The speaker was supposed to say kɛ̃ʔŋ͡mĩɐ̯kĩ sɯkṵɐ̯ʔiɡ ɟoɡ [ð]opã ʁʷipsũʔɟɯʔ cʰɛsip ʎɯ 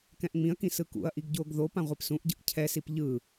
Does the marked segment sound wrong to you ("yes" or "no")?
no